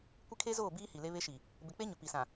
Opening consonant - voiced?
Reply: no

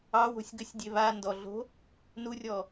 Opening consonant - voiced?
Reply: yes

